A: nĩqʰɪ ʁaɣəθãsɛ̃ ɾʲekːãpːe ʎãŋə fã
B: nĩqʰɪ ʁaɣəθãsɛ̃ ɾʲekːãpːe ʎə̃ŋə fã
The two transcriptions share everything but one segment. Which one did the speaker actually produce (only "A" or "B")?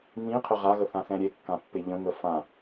B